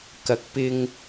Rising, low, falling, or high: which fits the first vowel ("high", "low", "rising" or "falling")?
rising